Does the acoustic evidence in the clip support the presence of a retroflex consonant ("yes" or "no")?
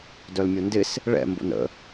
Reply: yes